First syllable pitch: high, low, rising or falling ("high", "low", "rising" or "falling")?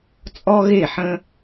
high